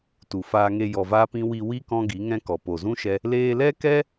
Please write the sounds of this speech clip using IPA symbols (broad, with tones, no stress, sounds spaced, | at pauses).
t u˨ f aː˧ ŋ e˧ j ɔ˨ v aː˧ p ĩ˧ w i˧ w i˦ k ɔ̃˦ ɡ i˨˦ ŋ ɛ̃˦ k ɔ˨ p o˨ z ũ˦ ʃ ɛ˧ | l eː˧ l ɛ˦ k ɛ˦